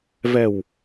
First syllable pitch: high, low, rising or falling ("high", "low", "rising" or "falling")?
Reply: low